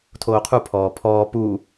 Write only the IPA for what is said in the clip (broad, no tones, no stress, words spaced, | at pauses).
tʰoːqʰu pʰɔːpʰɔː pu